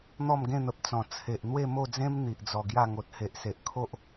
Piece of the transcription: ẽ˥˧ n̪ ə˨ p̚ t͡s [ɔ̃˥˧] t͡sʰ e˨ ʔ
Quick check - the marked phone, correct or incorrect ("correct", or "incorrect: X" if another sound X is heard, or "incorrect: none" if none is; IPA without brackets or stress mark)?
incorrect: ɔ̃˨˩